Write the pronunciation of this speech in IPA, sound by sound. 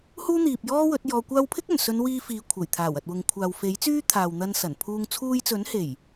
h uː˥ n̪ iː˨ p̚ j ɔː˥ w ɵ˨˥ t̚ j ɔː˧ kʷ aː˥ w pʰ ɪ˥ k̚ ɵ˨˩ n s ɵ˨˧ n w iː˧ f iː˨˧ kʷʰ ɐ˨˩ j t̪ʰ aː˨˩ w ɐ˨ t̚ w ʊ˨ ŋ kʷʰ aː˨ w f e˨˥ j t͡s yː˥ t̪ʰ aː˨ w n̪ ɐ˧ n s ɐ˨˩ n pʰ uː˧ ŋ t͡sʰ uː˧ j t͡s ɵ˨˥ n h e˨˩ j

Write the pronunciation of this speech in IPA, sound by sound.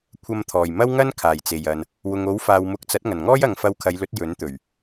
kʷʰ ɐ˧ m t̪ʰ ɔː˨˩ j m ɐ˥ w ŋ ɐ˥ n kʰ aː˨˩ j t͡s e˨˩ j ɐ˨ n | w ʊ˨ ŋ o˨˥ w f aː˨ w m ʊ˨˥ k̚ t͡s ɐ˨˥ t̚ ŋ ɐ˨˩ n ŋ ɔː˥ j ɐ˨ ŋ f ɐ˧ w kʰ ɐ˨˧ j l ɵ˨˥ t̚ j ɵ˨˥ n t̪ ɵ˨˩ ɥ

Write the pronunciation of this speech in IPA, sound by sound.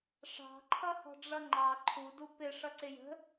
ʂ ɑ̤ ǃʰ ʌ h ɔ̤ ɖ͡ʐ ʌ ŋ͡ǃ ɑ ǃʰ u d u p ɪ ʂ ʌ ǀ ɪ j ə̤

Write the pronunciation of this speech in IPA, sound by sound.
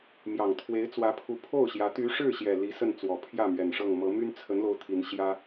m j ɑ˨˩ ŋ t̪ʰ w e˧˥ ɪ̯ t͡s w ä˧˥ pʰ u˧˥ pʰ o˥˩ ʊ̯ ɕ j ä˧˥ t̪ y˧˥ ʂ ɻ̩˥˩ ɕ j ɛ˨˩ l i˧˥ s ə˥˩ n t͡s w ɔ˨˩ pʰ j ä˥˩ m ɥ ɛ˨˩ n ʂ ɤ˥˩ ŋ m ɤ˧˥ m y˥ n t͡sʰ ə˧˥ n l o˧˥ ʊ̯ t̪ʰ i˧˥ n ɕ j ä˥

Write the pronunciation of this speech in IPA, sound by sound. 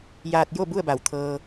j aː˧ t̚ j o˥˨ b u˥˨ ə̯ b a˧˩ w t̪ʰ ɤː˧

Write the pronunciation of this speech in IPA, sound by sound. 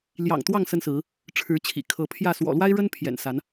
l j ɑ̰˨˩ ŋ t̪ w ɑ˥˨ ŋ s ə˦ n s ɹ̩˨˦ | ʈ͡ʂʰ ɻ̩˨˦ t͡ɕʰ ḭ˨˩ kʰ ɤ˨˦ pʰ j ä˥˨ s w ɔ̰˨˩ l w a˦ ɪ̯ ɻ ə˦ n pʰ j ɛ̰˨˩ n s a˨˦ n

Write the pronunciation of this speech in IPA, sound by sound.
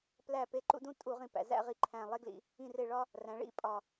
p l æ˦˨ p e˦˨ ǃ ṵ˦ d ũ˦ tʼ u˧˩˧ ʁ ĩ˨˩ p æ̰˨˩ z æ̰˦˨ ʁ i˨˩ ǃʰ æ̃˨˩ lˠ e˦ ɡ l ḭ˧˩˧ | ĩ˦˨ r e˦˨ ɭ ɒ˦ | r æ̃˩˧ ɭ ḭ˦˨ pʼ ɒ˨˩

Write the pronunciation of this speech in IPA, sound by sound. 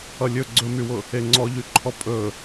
ʌ lʲ ɵ ɡ͡ǀ ɵ m y w ʊ | e ŋ͡ǀ ɔ ʎ y ǃʰ ɔ pʼ ɵ

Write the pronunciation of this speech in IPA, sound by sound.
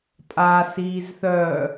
pʼ a s iː z θ œ

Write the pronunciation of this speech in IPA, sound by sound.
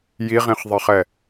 j i ʁ ĩ χ ðˤ e χ ɛ

